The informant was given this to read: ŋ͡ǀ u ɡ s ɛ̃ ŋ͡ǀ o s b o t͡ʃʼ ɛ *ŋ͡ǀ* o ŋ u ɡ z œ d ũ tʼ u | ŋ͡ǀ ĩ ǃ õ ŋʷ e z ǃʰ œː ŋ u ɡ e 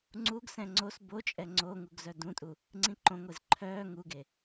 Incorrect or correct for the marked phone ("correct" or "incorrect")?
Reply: correct